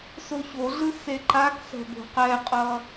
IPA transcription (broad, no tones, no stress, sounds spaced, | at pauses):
s o ç o ɮ ɯ s e ǃ a k s ɛ̤ b o̤ q ɛ qʼ ʌ